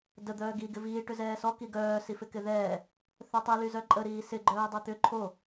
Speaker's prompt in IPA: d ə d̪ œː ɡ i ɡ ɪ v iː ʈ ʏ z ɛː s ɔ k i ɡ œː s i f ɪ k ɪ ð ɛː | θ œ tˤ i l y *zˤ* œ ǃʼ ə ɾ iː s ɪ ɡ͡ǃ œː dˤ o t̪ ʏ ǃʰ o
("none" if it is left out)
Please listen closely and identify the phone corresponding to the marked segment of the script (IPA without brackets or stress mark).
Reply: z